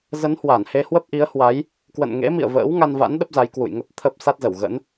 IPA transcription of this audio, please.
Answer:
z ə˨˦ n h w a˧˩ n h e˧ h w ə˦˥ p̚ ʔ i˨˦ ə̯ h w a˨˦ j | k w ə̰˧˨ n ŋ ḛ˧˥ m ḭ˧˨ ə̯ v ə̰ː˧˥ w ŋ a˧ n v a̰˧˥ n ɗ ə˦˥ p̚ z a˨˦ j k w ṵ˧˨ j ŋ ə˦˥ p̚ t̪ʰ ə˦˥ p̚ s a˦˥ t̚ z ə˧˩ w ɣ ə̰˧˥ n

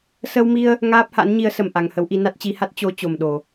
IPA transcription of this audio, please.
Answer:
s ə˧ w m i˧ ə̯ | ŋ aː˦˥ p̚ h a̰˧˥ n ɲ i˨˦ ə̯ s ə˨˩ m ʔ a˨˩ ŋ h ə˨˦ w ʔ i˧ n a˦˥ t̚ t͡ɕ i˨˦ h a˦˥ t̚ t͡ɕ o˨˦ t͡ɕ o˨˩ m ɗ o˨˩

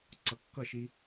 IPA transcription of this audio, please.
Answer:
ǀ ʌ kː ʌ ʃ i

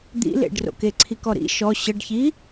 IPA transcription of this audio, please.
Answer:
d̪ ḭ l ḛ ɖ r o̰ k e ǀʰ i k ɔ ɾ ḭ ʃ ɔ ɕ ə ɖ ç i

